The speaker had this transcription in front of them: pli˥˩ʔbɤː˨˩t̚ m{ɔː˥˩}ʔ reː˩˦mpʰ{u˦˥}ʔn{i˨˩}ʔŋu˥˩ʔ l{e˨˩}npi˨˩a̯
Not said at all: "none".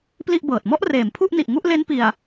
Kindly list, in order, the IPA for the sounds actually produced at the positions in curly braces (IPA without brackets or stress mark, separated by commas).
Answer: ɔ˥˩, u˥˩, i˨˩, e˦˥